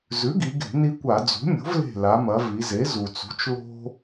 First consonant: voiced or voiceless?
voiced